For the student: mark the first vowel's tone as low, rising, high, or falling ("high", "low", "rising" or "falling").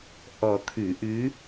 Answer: low